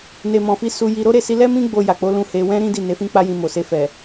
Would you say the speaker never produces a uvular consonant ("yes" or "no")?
yes